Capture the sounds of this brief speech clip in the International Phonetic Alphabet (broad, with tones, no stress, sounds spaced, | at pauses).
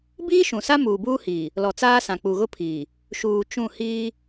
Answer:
b iː˦ ʃ ũ˨ s a˦ m uː˨ b uː˦ h iː˨ | l ɔ˨ t͡s aː˦ s ã˨ k͡p u˨ ɣ ʊ˦ pʰ iː˨ | ʃ uː˨ t͡ʃ ũ˦˨ h iː˦